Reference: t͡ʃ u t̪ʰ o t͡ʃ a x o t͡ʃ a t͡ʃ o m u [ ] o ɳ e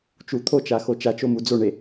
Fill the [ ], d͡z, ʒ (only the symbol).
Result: d͡z